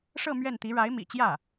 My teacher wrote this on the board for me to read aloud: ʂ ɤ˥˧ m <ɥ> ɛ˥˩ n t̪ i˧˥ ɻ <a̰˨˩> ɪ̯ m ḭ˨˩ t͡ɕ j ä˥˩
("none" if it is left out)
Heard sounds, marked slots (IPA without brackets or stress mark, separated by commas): ɥ, a˧˥